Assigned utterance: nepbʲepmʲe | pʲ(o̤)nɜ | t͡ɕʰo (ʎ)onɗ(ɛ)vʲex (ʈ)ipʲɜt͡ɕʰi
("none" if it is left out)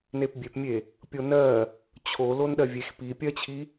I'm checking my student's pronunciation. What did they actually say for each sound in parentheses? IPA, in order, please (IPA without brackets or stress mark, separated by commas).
o, l, ɜ, p